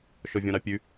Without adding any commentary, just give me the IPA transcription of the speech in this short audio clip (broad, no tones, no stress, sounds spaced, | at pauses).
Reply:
ʃ ɔ vʲ ɔ̃ ɾ ɑ pʲ ʉ